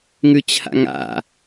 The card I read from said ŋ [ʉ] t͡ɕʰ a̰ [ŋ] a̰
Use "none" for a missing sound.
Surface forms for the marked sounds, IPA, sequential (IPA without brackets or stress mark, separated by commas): ʉ, ŋ